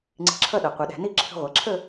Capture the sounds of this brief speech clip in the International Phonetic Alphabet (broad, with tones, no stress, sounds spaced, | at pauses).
ŋ͡ǀ i̤˧ ǁʰ ʌ˥˧ ɗ ʌ˩˧ qʷ ʌ˩˧ ɗ æ̤˩˧ n i˥˧ ǁʰ ə̤˧ ʁʷ ʌ˩˧ ǁʰ ə˥˧